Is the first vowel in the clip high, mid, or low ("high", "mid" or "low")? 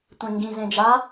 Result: mid